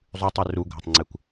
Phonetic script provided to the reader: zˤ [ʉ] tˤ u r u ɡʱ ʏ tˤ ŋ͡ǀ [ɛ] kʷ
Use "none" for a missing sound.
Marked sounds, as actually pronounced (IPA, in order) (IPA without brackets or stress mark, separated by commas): ʉ, e